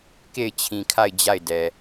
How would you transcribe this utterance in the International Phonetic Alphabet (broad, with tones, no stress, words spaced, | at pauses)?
ke˦˨ɪ̯t͡ɕʰĩ˨kʰa˦˨ɪ̯ d͡ʑa˦˨ɪ̯dɛ˨